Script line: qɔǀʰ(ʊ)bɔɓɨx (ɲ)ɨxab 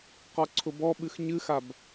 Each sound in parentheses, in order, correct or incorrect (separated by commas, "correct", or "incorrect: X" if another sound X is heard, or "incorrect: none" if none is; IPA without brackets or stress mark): correct, correct